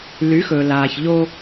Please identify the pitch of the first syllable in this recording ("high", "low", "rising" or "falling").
rising